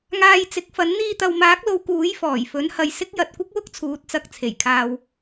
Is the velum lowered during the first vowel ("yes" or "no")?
no